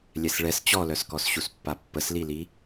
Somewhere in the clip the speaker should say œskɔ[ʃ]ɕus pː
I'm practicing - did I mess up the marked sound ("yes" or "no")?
yes